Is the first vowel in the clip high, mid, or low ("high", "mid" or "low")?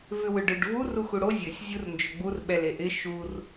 high